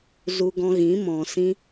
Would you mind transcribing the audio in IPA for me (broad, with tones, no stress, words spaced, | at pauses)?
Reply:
zu˧ɡɔ̃˧ɣĩ˨˦ mɔ̃˨sĩ˧